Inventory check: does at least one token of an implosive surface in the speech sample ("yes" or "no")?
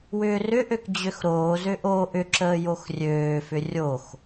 no